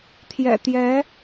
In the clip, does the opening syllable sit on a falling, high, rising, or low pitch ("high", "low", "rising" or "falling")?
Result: low